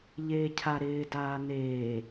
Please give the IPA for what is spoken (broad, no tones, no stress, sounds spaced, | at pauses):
ʎ eː cʰ a ɾ ɪː d aː n eː